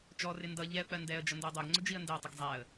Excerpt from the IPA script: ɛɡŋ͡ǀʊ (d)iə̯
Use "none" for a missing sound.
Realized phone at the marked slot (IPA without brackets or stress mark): d͡ʒ